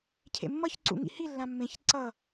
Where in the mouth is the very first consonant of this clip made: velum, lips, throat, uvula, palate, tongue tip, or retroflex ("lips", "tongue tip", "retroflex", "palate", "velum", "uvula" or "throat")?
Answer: palate